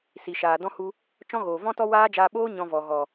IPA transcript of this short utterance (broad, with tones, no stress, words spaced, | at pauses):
si˨ʃaː˨dɔ̃˦hu˧ | t͡ʃɔ̃˦ɣoː˨ vɔ̃˦tɔ˦waː˦d͡ʒaː˧ ɓoː˦ ɲɔ̃˧vɔ˨ ɣɔ˨